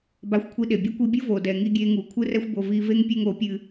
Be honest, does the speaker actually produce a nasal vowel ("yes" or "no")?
no